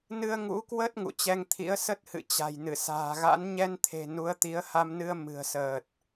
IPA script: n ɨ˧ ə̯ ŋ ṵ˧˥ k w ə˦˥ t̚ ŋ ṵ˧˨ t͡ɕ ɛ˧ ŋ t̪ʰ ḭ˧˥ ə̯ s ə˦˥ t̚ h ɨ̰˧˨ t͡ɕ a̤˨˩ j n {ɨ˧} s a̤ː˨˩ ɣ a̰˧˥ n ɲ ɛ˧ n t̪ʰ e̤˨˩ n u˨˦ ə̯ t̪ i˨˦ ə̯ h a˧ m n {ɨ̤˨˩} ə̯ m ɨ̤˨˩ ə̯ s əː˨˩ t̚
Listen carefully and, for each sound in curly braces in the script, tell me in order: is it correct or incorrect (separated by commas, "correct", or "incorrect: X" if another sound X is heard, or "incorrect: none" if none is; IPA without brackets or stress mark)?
incorrect: ɨ˧˩, incorrect: ɨ˧